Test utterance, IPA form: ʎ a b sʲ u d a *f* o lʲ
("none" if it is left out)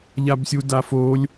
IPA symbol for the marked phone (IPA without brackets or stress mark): f